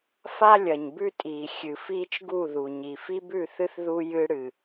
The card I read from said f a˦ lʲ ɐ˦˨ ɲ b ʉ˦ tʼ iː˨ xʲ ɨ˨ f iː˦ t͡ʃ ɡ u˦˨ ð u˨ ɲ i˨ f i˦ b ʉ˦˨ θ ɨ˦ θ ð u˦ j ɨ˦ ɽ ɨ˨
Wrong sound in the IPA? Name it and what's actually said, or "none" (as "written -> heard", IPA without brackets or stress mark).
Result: ɐ˦˨ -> ɐ˨